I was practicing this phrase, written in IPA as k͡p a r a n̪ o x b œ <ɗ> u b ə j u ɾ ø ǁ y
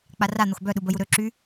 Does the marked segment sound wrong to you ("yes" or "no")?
no